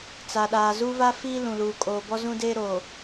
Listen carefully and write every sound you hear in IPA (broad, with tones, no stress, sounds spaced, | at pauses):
t͡s a˨ ɗ aː˨ z u˦ v a˦ f iː˦ l ũ˨ l uː˨ kʼ oː˨ b ɔ˦ z ũ˦ d eː˦ ɾ oː˨